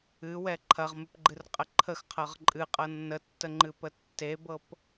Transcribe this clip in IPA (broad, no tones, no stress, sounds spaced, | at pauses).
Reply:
ɨ w ɛ ǃʰ ɐ ʁ m ɨ p ɡ͡ǃ ɨ r qʼ ə ǃʰ ə x qʰ ɤ ʁ ǃʼ ɨ qʼ ɤ nː ə tː ə ŋ͡ǃ ɨ p ə tː e b ɤ p